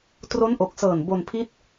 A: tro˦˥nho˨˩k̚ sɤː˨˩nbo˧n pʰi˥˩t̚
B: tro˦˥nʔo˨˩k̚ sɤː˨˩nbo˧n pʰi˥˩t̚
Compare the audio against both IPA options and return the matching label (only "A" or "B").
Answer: B